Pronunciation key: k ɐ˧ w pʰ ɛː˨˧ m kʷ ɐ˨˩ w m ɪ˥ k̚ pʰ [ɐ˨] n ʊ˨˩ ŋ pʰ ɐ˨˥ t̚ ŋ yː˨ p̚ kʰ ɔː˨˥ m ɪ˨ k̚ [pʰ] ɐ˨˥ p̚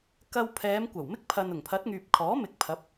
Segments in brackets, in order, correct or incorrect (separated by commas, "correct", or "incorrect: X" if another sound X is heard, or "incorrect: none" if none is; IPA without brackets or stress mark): correct, correct